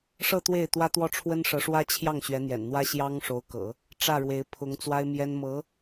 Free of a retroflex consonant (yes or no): no